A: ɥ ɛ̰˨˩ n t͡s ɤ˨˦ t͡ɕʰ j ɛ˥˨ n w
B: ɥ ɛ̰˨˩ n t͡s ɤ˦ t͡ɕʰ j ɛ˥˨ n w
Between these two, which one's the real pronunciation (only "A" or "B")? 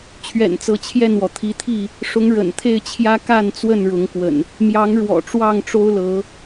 A